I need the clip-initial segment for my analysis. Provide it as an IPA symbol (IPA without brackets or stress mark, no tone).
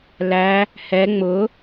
l